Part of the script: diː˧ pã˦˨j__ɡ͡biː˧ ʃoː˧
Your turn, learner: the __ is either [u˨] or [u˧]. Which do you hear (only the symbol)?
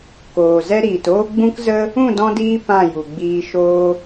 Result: u˨